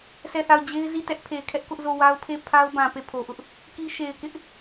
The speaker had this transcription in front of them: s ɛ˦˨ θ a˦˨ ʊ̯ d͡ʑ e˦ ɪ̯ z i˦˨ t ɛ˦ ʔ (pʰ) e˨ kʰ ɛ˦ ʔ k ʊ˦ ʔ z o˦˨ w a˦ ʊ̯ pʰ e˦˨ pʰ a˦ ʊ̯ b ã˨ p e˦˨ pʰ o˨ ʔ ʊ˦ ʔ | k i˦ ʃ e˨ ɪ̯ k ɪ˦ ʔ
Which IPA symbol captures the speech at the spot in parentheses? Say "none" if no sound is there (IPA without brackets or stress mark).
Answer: pʰ